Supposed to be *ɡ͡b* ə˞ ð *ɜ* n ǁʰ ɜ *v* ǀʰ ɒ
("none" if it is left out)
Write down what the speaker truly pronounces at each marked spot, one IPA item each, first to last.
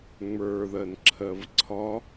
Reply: ŋ͡m, ɜ, v

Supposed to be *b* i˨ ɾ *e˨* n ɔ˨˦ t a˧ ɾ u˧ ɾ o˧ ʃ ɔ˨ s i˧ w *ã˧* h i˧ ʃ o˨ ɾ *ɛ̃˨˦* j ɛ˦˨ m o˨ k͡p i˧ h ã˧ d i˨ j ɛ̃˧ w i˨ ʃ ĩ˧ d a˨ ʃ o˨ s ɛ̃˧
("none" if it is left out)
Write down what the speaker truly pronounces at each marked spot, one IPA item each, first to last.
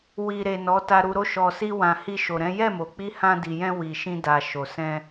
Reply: w, e˨, ã˨, ɛ̃˨˦

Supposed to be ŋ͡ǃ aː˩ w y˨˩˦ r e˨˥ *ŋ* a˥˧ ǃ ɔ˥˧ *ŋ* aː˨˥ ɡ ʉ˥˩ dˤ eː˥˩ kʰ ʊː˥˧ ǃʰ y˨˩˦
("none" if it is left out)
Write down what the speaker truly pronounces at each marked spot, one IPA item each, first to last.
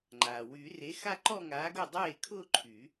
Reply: x, ŋ

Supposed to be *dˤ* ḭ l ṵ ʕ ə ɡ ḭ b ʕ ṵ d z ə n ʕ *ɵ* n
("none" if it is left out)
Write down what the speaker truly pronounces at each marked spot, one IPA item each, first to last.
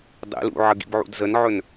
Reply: dˤ, ɵ

